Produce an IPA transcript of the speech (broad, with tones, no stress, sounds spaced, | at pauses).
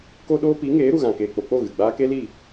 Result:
k o˦ ɗ oː˦ p i˨˦ ŋ eː˨˦ ɾ u˨ ɣ ã˨ k eː˨ k͡p o˨ k͡p o˦˨ ɣ ɨ˨ ɡ͡b aː˦ k e˦ l i˦˨